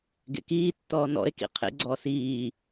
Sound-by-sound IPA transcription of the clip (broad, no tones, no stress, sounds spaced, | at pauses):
ɡ ḛ k iː tː ɔː n ɔ̰ e̯ k ḭ qʰ ḛ ɡ͡ǀ ɔː s iː